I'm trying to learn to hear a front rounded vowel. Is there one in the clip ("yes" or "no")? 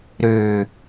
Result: yes